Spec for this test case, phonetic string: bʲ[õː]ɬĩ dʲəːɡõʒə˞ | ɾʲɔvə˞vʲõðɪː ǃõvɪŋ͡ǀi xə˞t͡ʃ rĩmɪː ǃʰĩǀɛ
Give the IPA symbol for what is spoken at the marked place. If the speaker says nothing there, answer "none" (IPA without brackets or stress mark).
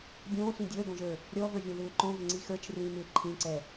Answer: õː